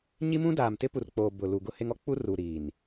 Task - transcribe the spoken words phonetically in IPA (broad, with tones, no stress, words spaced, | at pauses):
ɲi˦mũ˦ daː˨mtɪ˦pu˨rk͡poː˨ bʊ˨lu˨ ɡʊ˦he˦ŋɔ˦ k͡pu˦ruː˨ɾiː˨n